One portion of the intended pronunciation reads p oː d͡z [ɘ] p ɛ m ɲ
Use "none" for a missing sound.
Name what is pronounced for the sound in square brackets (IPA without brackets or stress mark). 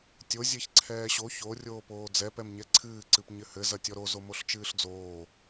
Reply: ɛ